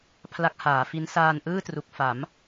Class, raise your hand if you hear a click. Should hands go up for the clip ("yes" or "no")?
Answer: no